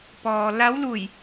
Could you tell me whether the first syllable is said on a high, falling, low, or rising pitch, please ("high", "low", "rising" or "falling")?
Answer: low